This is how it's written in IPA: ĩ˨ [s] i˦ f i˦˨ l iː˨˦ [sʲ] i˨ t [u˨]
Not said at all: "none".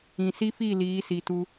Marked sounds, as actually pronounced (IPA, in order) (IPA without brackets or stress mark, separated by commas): s, s, u˦